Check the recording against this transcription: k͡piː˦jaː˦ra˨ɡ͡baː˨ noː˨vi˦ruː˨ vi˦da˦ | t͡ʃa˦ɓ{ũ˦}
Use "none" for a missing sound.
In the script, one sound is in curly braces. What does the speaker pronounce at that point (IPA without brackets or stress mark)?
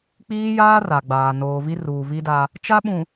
ũ˨